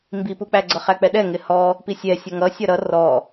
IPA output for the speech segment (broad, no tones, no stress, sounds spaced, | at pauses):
m b i p u k͡p æ ɡ͡ǀ ʌ χ æ k͡p ɛ ɗ ɛ ŋ ɪ h ɔ | p i sʲ ɛ sʲ ʌ ŋ ʌ sʲ ʌ ɾ ʌ r ɔ